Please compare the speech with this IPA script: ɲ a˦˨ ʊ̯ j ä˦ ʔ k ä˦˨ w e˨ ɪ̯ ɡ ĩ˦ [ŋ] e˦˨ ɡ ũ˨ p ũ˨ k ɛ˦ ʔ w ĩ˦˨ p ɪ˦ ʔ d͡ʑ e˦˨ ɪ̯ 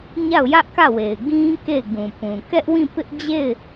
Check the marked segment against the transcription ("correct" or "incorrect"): incorrect